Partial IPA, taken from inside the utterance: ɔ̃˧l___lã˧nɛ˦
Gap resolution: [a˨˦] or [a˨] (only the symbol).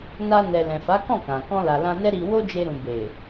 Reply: a˨